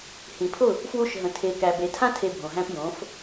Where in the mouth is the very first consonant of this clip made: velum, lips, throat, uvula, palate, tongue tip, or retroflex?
throat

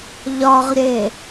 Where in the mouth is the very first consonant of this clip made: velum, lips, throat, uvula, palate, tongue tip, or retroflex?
palate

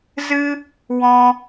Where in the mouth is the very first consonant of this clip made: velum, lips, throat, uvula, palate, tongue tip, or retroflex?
tongue tip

